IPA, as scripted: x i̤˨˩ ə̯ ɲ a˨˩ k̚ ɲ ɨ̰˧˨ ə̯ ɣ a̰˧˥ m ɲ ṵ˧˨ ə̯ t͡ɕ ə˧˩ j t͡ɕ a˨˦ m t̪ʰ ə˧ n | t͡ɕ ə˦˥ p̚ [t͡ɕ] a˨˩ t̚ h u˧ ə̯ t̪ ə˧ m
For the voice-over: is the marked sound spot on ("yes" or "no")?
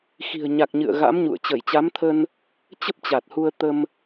yes